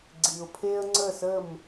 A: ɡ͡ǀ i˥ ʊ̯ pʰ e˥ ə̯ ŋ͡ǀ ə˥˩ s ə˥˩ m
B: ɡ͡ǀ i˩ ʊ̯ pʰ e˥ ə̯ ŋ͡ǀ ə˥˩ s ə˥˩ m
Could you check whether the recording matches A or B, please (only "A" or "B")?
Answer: B